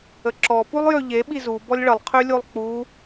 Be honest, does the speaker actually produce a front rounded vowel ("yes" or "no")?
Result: yes